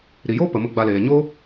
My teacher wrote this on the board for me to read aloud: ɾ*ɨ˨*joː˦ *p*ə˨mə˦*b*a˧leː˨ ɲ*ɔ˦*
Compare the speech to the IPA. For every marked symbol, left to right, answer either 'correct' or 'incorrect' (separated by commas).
incorrect, correct, incorrect, incorrect